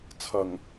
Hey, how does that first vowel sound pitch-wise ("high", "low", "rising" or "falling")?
low